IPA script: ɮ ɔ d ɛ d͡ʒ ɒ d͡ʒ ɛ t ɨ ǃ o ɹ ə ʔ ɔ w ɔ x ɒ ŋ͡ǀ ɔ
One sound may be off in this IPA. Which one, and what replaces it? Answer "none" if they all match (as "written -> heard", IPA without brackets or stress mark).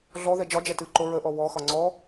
d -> ð